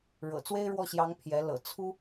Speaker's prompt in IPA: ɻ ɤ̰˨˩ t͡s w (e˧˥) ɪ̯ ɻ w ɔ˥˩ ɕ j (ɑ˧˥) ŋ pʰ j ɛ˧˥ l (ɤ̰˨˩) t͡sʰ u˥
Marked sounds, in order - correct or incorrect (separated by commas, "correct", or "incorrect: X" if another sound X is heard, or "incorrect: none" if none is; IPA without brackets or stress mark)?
incorrect: e˥, correct, correct